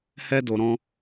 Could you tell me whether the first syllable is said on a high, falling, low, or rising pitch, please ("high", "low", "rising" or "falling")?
high